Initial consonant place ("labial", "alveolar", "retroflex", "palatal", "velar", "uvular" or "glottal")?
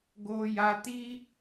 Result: velar